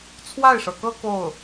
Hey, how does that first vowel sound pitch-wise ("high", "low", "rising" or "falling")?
falling